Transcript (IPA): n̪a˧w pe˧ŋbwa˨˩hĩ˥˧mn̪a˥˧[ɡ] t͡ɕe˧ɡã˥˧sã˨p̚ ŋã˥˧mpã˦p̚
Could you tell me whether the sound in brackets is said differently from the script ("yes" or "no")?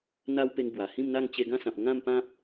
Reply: yes